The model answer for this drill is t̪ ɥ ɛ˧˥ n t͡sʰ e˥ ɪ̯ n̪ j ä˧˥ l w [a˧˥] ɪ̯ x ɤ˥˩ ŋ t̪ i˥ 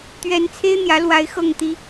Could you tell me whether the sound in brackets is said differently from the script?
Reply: no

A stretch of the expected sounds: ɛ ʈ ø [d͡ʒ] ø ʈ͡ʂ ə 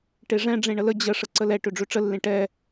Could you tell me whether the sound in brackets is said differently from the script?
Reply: yes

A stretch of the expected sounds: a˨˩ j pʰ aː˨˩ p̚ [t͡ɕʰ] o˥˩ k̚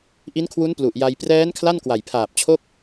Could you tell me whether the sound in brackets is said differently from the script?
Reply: no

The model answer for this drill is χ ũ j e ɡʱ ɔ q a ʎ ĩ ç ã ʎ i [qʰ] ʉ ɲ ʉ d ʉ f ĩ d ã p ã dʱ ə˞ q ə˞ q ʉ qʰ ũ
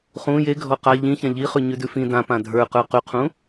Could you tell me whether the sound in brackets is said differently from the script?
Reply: yes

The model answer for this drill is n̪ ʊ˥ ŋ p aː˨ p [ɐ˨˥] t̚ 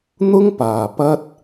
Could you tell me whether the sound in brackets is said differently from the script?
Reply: yes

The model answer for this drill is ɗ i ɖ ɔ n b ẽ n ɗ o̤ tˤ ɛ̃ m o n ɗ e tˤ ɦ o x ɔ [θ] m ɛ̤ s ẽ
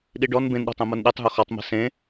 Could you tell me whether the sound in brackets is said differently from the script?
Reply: yes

